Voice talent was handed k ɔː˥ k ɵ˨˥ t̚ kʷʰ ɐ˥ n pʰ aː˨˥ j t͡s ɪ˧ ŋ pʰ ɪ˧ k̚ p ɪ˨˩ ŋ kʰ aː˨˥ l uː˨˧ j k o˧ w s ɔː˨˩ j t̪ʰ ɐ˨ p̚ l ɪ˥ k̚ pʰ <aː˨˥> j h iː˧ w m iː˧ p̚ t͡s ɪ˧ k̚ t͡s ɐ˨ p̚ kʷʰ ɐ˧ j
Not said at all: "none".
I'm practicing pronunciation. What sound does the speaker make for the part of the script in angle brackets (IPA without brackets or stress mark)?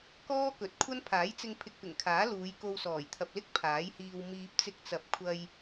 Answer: aː˨˥